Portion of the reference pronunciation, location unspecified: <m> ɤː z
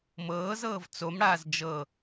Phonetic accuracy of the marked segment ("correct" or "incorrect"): correct